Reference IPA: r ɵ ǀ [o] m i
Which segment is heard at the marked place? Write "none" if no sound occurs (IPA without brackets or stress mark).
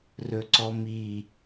ɔ